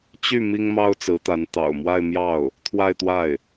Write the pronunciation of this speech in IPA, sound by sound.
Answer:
t͡ɕy˥˩ mi˥ŋmɑ˥ʊ̯ t͡sɹ̩˧˥t̪a˧˥n t̪ɑ̰˨˩ʊ̯mwa˥˧ɪ̯mjɑ˥˩ʊ̯ | t̪ʰwa˥˧ɪ̯t̪wa˥˩ɪ̯

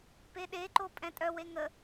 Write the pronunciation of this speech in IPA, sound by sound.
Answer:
peɗeǃo pʼɛ̃tʼœwe ŋə

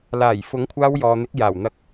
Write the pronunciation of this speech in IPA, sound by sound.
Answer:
laː˨˩j fʊ˨˥ŋkʷʰaː˧wjɔː˨n̪ɪ˨˥k̚ jaː˨˩wn̪ɐ˧k̚

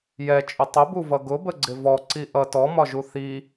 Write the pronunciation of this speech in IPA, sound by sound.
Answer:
jɛt͡ʃʼʊ tˤəbuvʌ ɡʊbəɡ͡ǀɪ vɔǀi ʔʌ tɔmɒʒu θi

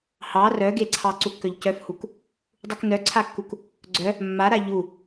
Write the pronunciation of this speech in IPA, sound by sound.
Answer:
hɑ rœɡeǀʰɑ ǀukːœʎcœfhuk | dˤuknœǀʰakːuk | ɡ͡ǀœ | mːaɾa ʎu

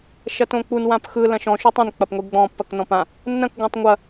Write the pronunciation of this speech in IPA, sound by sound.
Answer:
ʃɐtõk͡pun wãpxɯ lɐ̃ʃɔ̃ ʃutˤĩn k͡pɐpŋʷiɡ͡bɔ̃ pːɐknɔ̃pã | nːɐ̃k ɡʷãtˤŋʷɐ

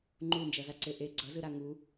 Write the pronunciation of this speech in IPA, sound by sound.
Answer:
ŋ͡ǃund͡ʒʌzaǀe ʔe ɡ͡ǀʌzɯɾa ŋu

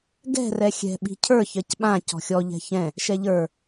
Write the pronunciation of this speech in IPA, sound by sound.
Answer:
ɡɛ̤ rɛxʲɛ̤ ɓi̤cʰə˞ çɜcɓã cɔ̤xʲɔ ʎɛ̤çɛ̃ | ʃɛʎə˞

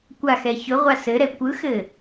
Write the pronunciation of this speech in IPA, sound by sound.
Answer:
kʷaxɛ çʊʁʷa sɘɾɛ kʷɯxɘ

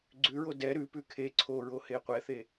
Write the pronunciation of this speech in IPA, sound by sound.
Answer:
ɡ͡ǀʉɹo dɛ ɾʉpʉ kʰe ǀʰoɹohe qʷɛθe

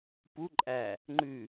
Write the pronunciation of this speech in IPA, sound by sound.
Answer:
pu ǃʼæ | ŋ͡ǃʉ

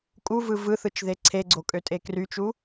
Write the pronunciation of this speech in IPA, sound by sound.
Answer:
kʼuvɯ vɯθɯt͡ʃðe ǀʰeɡ͡ǀokʼøtʼe kryt͡ʃu

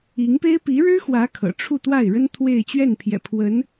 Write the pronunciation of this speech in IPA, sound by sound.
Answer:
i˧˥ŋpe˥ɪ̯ pi˧˥ɻɻ̩˥xwä˧˥ kʰɤ̰˨˩ʈ͡ʂʰu˥˧t̪wa˥˩ɪ̯ɻə˥n t̪ʰwe˥˧ɪ̯ t͡ɕɥɛ˥˩npʰjɛ̰˨˩ pʰwə˧˥n

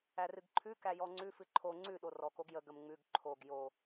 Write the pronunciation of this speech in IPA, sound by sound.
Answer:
ærɨɡǃʰʉ kæjɔŋ͡ǀʉ fɨǃʰo ŋ͡ǀʉ ɗorɔk oɡjə ɡəmŋ͡mʉɡ ǃʰoɡ jo

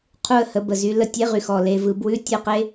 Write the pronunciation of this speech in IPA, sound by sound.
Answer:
qʰu˦˨ə̯hə˩˧ bə˨˩zy˩˧ lə˨˥tʲe˨˥ʁy˨˩xɔ˨˩ le˩˧vɯ˩˧ bwʉ˧˥˧tʲɯ˦˨qe˦˥

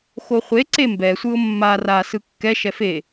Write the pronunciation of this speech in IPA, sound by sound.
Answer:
xoχʷeǀe mbɛsʷɯʊ̯ mːar asɯ kːɛʃɛf e

